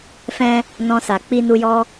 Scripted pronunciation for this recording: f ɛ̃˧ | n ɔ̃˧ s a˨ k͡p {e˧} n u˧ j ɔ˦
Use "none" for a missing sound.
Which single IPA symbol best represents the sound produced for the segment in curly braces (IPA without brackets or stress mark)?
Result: i˧